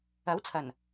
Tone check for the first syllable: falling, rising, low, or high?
rising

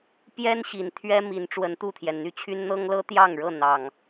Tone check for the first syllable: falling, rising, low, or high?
high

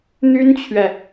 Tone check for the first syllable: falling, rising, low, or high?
high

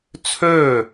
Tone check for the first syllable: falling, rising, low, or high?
falling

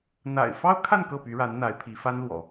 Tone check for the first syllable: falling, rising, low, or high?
low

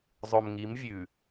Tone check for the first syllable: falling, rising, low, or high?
low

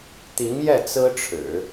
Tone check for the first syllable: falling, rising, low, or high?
rising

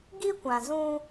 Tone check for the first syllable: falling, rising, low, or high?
high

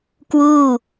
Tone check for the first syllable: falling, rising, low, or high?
falling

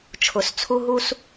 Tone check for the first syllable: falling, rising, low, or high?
low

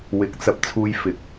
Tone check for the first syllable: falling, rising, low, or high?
rising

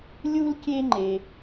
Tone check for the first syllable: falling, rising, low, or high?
high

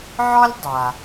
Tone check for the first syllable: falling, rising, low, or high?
high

